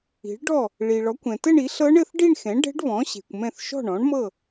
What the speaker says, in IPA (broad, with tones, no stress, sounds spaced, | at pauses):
i̤˩˥ ɭ ɖ ɔ˥˩ | ɭ i˩ ɭ ɔ˩˥ kʷ ɛ̃˩ t ɘ˥˧ ɳ i˩˥ ɬ ɤ˦˥ ɳ ɘ˥˧ θ ɖ i˥˧ ɳ x ɛ̃˩˥ ɖ ɛ̤˦˥ ɖ β ɔ̃˩˥ ɕ e̤˩ kʷ m ɛ̃˧˩ θ ʃ ɔ̤˥˩ ɳ ɔ̃˩˥ ɳ m ɤ˥˩